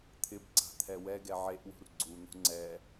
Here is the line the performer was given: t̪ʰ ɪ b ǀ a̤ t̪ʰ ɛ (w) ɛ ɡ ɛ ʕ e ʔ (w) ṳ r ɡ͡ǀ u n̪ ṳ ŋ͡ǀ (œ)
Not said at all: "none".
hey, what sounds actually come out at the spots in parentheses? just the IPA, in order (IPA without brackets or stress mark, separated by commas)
w, w, ɛ